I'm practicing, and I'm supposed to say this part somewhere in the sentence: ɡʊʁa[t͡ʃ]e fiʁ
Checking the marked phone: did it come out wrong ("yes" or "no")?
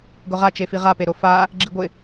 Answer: no